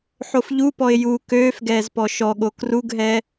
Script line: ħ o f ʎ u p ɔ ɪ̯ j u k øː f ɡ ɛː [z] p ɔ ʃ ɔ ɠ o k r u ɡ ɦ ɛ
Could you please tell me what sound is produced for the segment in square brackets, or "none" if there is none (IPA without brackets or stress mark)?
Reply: z